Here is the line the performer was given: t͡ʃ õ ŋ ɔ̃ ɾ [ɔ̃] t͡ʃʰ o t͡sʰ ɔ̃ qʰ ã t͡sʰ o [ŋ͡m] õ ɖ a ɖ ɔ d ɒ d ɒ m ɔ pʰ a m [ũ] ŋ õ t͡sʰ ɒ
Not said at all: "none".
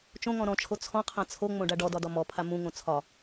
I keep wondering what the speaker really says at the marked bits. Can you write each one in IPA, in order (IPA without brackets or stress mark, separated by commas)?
ɔ̃, ŋ͡m, ũ